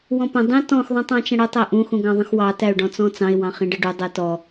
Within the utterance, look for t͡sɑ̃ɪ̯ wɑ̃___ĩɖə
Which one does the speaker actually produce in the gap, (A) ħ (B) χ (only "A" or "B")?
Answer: B